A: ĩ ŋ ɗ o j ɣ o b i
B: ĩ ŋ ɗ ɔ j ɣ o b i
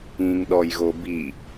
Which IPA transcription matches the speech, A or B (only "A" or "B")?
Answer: B